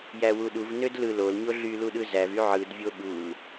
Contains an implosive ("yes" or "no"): yes